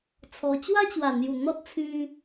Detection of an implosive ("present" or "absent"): absent